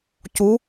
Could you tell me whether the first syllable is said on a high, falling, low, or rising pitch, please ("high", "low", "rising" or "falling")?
rising